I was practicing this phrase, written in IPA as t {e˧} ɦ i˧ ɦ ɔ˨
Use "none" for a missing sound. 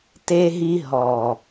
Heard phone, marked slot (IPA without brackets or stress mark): e˧